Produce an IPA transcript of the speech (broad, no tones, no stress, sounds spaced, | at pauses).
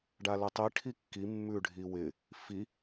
ɖ a l ɛ tˤ i ʈʰ i kː i mː ʉ ɖʱ i w ɪ | f i